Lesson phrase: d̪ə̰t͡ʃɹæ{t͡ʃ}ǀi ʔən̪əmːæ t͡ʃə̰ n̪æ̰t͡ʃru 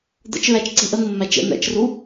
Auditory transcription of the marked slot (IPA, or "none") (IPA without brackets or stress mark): t͡ʃ